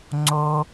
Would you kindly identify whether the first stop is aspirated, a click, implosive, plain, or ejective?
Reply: click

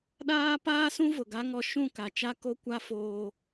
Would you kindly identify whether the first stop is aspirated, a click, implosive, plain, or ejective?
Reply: implosive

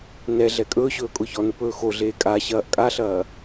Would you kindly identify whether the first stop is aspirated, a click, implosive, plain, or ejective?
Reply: ejective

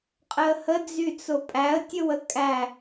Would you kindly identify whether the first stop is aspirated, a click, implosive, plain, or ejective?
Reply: ejective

